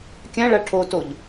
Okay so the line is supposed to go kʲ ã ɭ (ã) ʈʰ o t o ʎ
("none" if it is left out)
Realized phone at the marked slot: a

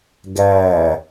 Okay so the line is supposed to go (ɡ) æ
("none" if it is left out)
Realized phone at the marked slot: ɡ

